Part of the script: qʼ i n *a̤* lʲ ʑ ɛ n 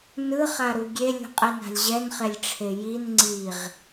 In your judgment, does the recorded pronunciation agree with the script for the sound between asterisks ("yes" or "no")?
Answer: yes